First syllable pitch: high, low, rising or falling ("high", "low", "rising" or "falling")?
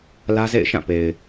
high